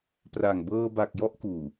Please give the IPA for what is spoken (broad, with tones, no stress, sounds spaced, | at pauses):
p r a˨˩ ŋ b ɤː˧ b a˨˩ k̚ j ɔ˥˩ ʔ k uː˨˩